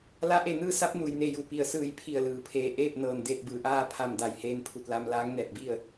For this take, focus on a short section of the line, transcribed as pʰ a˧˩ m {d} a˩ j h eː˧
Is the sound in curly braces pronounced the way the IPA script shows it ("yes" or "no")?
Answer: yes